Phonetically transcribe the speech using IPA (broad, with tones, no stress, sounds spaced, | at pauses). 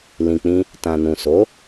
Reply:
l ĩ˨ k͡p ĩ˧ | t ã˨ n ũ˨ s o˨˦